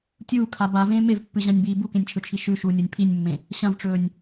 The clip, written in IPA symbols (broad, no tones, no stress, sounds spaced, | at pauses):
tʲ uː kʰ a b a v ẽː m e v pː ɨ ʑ ã nʲ b iː b u k ẽ nʲ t͡ʃʰ ɵ t͡ʃʰ i ʃ ʉ ʃ uː nʲ o nʲ pʰ i nʲ mː ẽ | ɕ ɐ̃ v ʈ͡ʂ ɵː nʲ